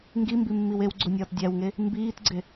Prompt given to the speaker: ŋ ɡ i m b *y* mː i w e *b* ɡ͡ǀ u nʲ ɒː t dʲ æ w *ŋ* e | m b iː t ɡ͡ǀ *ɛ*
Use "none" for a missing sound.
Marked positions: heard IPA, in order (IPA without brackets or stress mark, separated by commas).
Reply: i, w, ŋ, e